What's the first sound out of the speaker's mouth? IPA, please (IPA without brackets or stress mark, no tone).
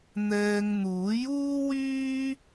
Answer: n̪